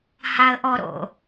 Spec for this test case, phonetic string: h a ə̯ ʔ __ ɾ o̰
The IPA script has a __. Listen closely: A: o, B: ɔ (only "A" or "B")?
B